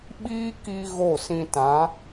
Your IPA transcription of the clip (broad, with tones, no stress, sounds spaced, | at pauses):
ɓ iː˦ k i˧ ɣ o˦˨ s ĩ˧ t ã˨˦